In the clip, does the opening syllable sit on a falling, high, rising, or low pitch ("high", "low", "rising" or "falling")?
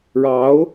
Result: rising